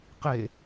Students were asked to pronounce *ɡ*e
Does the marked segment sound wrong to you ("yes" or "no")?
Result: yes